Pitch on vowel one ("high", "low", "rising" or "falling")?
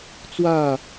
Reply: falling